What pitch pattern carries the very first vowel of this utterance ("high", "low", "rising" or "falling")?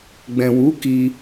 low